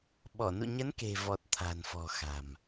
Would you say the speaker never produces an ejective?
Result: yes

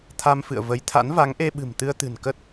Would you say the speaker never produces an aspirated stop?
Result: no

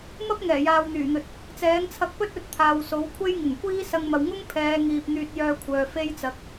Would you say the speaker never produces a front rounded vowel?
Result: no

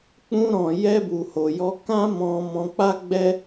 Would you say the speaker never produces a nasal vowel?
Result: no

